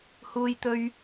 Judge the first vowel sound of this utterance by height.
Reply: high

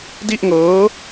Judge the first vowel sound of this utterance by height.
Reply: high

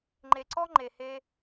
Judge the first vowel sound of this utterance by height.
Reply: mid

